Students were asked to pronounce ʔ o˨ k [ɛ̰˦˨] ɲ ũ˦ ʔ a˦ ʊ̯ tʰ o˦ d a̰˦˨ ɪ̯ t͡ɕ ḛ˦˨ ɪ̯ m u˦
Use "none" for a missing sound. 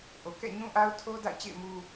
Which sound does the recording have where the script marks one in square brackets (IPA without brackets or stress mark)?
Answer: ɛ̰˦˨